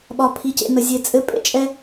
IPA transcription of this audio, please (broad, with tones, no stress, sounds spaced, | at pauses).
ɓ ɒ˨ pʰ i˨ c ḛ˨ n ə˨ zʲ e˨ t͡sʼ ɘ˨˦ pʼ ḛ˦ t͡ʃʼ ɛ˧